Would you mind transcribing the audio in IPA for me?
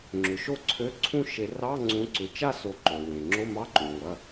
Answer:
ŋ͡ǁʏ˩ʃo˥˧ǀʰø˧˥˧ǀʰũ˥˧ ʃe˨˩˦ rɑ˧˥˧ŋ͡ǀũ˨˦ǀʏ˩˧˩ t͡ʃa˥˧so˨˩˦ǃo˩wẽ˩ ŋ͡ǁo˧˥˧mɑ˧˥˧ǃũ˩ ŋʷɐ˩˧˩

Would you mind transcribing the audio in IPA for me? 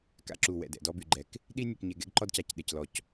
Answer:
ka̰˦ǁu˨wɛ̰˨ dɛ̰˨dɔ˦by˨ɡ͡ǃɛ˨k | ɗi˦nʲœ˨kɲe˨ ɡɛ̰˦ɡǃɔ˦dca˨c ɗe˨clɔ˨c

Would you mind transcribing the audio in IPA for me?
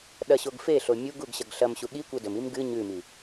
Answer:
ɗɐ ɕoɡfeɬo mʲuɡuɡ ɕɐɡɬɐmɕu ɠi kʷedɵmim ɡɨ ɲʉmi

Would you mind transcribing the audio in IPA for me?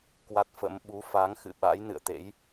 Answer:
kwa˦˥t̚fə̰˧˥m ɓu˨˦fa˨˦ŋxɨ̰˧˨ ɓa̰˧˥j nɨ̰˧˨ə̯t̪ḛ˧˥j

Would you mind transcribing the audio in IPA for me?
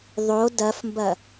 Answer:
ðˤo dɐfmbɐ

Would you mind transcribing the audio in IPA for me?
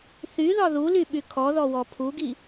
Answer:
θyðɒ ðulyɓy kʰɔðɔwɔ pʰuɡi

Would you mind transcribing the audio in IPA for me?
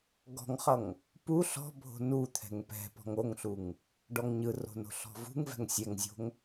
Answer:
ɡɔ̤ŋχʌŋ | pu ɬɔ̤ bʱo̤nut̪ʰɛ̤ŋ pɛ̤pɔ̤ŋ oŋɬuŋ | ɖɔŋɲɯro̤ no̤ɬɔ̤vṳŋvɛ̤ŋ sʲɛŋzʲo̤ŋ

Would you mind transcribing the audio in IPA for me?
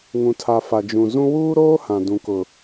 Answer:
ŋũ˨tʰa˨ fa˨d͡ʒũ˨ zũ˦ wuː˦ɾoː˦ hã˨dũ˨kʊ˨

